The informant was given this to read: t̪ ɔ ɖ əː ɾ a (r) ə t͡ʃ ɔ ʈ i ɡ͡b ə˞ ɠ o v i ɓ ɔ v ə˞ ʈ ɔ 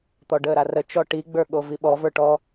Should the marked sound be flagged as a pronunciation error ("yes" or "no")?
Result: no